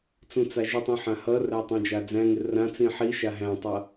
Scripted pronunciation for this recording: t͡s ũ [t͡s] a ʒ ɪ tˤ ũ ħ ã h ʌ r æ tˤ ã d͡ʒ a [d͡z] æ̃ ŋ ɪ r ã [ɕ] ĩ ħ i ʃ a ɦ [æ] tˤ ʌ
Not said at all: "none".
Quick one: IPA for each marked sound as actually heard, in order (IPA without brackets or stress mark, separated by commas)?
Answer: t͡s, d͡z, t͡s, æ̃